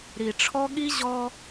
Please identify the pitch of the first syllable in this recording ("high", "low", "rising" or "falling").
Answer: low